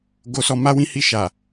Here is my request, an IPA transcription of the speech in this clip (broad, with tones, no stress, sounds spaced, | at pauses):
ɡ o˨ s ɔ˨ m a˧ w ĩ˧ h i˧ ʃ a˨